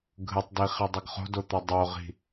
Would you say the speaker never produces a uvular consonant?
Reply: no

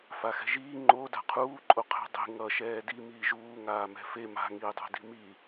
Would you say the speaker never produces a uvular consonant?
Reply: no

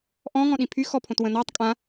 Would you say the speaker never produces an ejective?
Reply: no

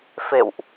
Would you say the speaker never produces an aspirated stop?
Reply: yes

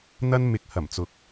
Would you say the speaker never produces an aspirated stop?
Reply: yes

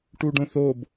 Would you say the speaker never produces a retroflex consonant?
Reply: no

